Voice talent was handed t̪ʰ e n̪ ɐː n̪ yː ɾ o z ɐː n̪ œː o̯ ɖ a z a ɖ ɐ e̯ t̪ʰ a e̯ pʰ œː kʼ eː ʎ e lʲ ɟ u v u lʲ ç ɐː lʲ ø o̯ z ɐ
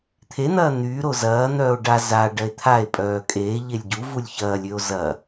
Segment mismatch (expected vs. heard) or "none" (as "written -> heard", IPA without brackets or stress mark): pʰ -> pʼ